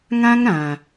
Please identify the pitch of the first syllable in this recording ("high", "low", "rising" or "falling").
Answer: high